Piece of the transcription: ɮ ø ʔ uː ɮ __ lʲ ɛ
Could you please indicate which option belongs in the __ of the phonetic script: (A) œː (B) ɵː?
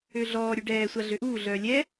A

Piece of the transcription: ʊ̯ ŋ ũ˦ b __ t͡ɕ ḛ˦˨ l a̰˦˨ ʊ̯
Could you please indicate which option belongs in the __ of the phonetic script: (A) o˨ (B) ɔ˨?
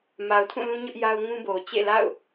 A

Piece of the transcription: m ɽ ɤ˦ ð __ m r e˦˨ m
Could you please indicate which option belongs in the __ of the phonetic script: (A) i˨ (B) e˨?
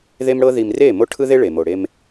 A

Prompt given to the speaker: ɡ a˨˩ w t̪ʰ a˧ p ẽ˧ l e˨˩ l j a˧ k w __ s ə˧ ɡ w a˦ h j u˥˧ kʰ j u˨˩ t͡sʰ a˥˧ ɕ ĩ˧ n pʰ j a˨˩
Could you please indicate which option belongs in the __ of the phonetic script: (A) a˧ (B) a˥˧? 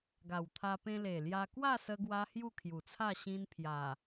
B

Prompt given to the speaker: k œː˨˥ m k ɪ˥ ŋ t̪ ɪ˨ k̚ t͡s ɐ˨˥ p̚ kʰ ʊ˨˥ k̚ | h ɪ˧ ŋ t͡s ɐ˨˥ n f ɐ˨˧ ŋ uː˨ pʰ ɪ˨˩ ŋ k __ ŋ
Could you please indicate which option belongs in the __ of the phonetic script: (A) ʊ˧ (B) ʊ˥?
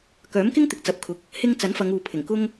B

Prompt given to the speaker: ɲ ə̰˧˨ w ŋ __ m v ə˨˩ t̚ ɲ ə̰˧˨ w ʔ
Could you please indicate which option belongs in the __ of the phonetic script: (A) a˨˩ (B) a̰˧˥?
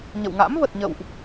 B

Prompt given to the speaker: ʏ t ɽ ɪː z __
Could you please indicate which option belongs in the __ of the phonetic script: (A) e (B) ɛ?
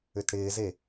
A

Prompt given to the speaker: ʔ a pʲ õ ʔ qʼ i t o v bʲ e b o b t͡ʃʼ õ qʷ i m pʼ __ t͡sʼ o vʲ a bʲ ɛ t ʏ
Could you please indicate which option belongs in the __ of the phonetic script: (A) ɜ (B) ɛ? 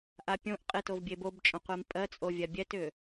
A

